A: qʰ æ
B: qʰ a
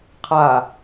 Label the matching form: B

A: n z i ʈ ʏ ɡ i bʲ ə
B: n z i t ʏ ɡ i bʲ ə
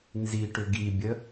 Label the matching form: A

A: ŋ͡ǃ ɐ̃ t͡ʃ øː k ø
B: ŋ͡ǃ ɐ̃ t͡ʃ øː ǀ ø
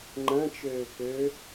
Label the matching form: A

